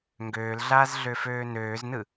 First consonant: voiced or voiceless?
voiced